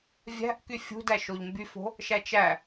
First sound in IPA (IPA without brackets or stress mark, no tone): vʲ